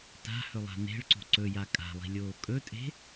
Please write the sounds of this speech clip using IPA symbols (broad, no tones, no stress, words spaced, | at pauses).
ta̤hɵlˠa̤ ne̤ɭǀo̤ ǀɵja kʼa̤lˠi̤lʲoː kʼɵtʼe̤